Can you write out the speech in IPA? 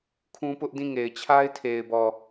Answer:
kʰũ˦pʊ˦ʔdĩ˦˨ ŋe˨ɪ̯t͡ɕʰa˦ɪ̯tʰe˨ɪ̯bɔ˨

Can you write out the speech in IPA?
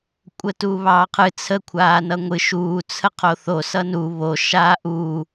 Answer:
kʷʼətuːβɑːqʰɨ t͡sʰəkʷʰaːnʌ ŋʷɨ ʃuːt͡sʰə qʰoθo sʌnu βo ʃaːʔuː

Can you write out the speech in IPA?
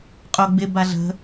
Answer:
qʼoɡ͡bɪ baɮə̤

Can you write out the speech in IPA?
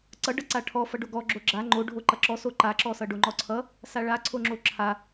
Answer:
ǀʌɖʌǀa ʈʰɔ fʌɖoɡɔ ɡ͡ǁoɡ͡ǁa ŋ͡ǃo ɖʱoǃʌǁɔ soǃaǁɔsʌ ɖoŋ͡ǃɔǀʰʌ | saɭaǀʰoŋ͡ǁo ǁʰa

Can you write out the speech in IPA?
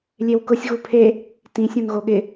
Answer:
lʲewkʊsʲ ɣupʰe | tĩ sʲõnɣoɠɪ

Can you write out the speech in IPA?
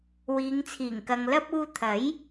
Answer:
wiː˨˧ŋt͡sʰiː˨˩ŋkɐ˨ŋlɐ˥p̚ uː˧t̪ʰɐ˨˥j

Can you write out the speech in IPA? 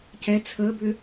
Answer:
cɛ t͡sʰəbʏ

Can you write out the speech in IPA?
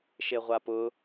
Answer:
ʃeʁʷapʊ

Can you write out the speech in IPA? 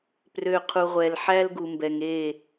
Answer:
prø˨ qʰu˨ʁʷɛ˨l ħæ˦lɡu˨mbɛ˨ŋe˦˨

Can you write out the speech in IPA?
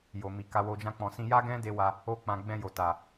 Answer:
jo˨mi˨ ka˧wo˧d͡ʒã˦k͡pɔ̃˧ sĩ˧ja˦ɡɛ̃˦de˧ wa˦ | o˧k͡pã˨ɡ͡bɛ̃˧ jo˨ta˨

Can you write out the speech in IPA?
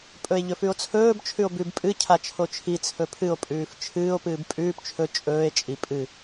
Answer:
pʼɵe̯ʎɵfʉo̯t͡sʰɵːb t͡ʃʰʉo̯bʉb pʼɨ cʰat͡ʃʰot͡ʃʰi t͡sʰɵpʰɨo̯ pʼʉːft͡ʃʰɨːo̯ pɨːbpʼʉːp t͡ʃʰɵ t͡ʃʼɵːe̯ t͡ʃʼi pʼɨ

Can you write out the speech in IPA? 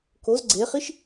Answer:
koz ɡ͡ǀeχiʃ

